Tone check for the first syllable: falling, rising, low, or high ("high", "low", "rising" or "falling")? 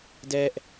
high